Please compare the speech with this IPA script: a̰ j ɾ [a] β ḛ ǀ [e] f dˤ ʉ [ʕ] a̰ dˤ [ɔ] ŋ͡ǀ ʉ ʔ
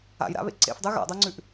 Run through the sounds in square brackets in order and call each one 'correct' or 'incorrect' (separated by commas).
incorrect, incorrect, incorrect, incorrect